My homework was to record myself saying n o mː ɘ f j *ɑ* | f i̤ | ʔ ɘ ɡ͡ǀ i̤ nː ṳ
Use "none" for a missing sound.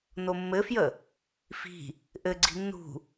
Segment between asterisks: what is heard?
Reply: ə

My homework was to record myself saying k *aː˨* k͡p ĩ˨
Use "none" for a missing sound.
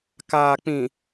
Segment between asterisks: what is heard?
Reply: aː˨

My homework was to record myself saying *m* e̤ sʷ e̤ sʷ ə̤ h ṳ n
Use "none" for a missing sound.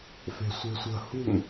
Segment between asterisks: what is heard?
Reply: f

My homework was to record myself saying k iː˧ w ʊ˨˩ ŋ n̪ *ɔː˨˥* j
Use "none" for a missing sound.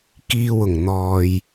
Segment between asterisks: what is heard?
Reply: ɔː˨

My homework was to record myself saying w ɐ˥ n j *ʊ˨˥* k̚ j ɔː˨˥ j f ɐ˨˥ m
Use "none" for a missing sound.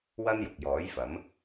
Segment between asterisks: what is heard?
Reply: ʊ˨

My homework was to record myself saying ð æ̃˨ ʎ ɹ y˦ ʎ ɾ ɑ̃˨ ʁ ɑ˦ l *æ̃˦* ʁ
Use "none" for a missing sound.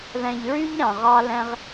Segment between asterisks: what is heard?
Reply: æ̃˦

